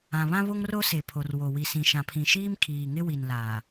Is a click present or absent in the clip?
absent